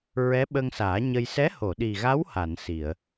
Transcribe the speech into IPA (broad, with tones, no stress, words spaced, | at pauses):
ɹɛ˧˥ɓə˧ŋsaː˨˩˦ ɲə˧j sɛ˧˥ ho˨˩˨ɗi˨˩ɣa˧˥w ha˨˩˨nsi˨˩˨ə̯